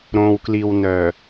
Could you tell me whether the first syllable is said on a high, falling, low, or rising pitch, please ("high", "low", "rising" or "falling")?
low